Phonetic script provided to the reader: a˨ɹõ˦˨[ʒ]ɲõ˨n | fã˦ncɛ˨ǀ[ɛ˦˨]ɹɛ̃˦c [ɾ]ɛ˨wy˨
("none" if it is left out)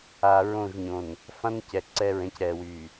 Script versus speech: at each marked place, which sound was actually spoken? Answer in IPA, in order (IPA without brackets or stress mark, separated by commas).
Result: ʒ, ɛ˦˨, ɾ